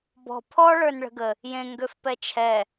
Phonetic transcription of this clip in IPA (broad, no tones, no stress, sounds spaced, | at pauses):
b ɔ̤ pʰ ɔ ɭ ə˞ n ɭ ə̤ ɡ ə | j ẽ ŋ ɡ ø f p ɛ t͡ʃʰ ɛ